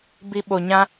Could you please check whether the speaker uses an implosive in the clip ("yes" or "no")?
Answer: yes